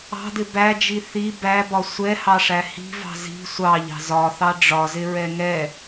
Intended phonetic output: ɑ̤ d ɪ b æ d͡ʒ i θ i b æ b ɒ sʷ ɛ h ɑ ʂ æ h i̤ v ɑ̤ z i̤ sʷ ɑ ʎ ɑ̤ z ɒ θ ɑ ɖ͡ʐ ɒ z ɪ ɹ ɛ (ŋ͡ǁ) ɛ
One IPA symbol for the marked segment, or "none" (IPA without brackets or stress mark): ŋ